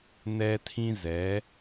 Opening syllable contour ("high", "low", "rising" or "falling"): high